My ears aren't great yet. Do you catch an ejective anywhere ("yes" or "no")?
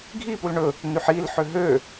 no